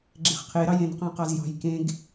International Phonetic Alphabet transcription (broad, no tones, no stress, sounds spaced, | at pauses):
ɡ͡ǁ e̤ χ qʰ e ɾ ɑ j ẽ n q ɑ̃ q ɑ z j ɑ̤ j k ẽ ɡ